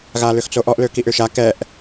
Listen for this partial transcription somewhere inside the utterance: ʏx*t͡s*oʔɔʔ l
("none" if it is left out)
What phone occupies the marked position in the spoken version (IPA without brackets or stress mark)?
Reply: t͡s